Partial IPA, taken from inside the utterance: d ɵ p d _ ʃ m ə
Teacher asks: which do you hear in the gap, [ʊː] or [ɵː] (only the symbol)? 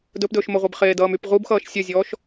ɵː